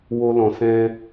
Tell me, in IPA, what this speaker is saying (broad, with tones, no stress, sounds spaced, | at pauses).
w o˧ l ɔ̃˨ s ɛ̃˧